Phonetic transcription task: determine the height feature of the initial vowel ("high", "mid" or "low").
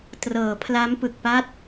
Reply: mid